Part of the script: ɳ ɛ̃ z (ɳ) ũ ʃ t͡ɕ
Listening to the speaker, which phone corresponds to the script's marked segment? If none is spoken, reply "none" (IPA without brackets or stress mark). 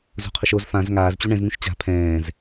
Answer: ŋ